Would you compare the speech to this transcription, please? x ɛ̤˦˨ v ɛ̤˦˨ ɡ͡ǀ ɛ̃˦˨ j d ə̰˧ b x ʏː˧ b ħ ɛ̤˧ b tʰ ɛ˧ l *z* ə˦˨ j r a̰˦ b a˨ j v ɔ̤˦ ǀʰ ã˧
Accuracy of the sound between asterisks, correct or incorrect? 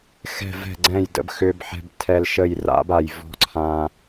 incorrect